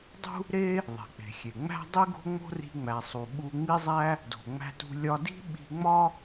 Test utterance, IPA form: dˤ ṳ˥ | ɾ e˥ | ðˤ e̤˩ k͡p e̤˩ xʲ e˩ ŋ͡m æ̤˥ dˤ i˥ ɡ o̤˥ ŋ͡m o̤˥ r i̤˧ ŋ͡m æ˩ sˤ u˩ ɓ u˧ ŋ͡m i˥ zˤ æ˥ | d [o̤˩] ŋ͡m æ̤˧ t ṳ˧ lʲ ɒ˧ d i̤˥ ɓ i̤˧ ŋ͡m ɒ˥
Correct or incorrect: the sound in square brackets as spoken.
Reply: correct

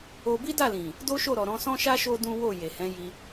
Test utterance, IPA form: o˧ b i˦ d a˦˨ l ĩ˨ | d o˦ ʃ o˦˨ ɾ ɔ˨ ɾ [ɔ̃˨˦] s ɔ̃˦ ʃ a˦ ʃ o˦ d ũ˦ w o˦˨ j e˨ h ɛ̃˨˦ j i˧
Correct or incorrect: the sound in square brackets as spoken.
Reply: correct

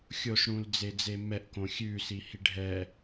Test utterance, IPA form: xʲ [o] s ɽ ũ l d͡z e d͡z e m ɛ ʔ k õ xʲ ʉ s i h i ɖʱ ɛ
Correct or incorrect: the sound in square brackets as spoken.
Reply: correct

